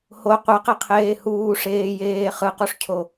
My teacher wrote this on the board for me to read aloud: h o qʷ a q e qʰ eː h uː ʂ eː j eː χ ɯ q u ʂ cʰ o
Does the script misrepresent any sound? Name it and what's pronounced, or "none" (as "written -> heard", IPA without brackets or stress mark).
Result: none